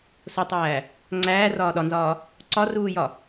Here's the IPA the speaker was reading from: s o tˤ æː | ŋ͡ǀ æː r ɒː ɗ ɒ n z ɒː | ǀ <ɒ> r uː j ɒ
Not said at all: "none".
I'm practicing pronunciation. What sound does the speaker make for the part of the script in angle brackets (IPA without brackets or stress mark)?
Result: ɒ